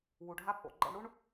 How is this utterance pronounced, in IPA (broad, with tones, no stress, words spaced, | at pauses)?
wu˩ɖʱa˧pʼo̰˩ ɡ͡ǃɛ̰˧ɳɽu˥ɳ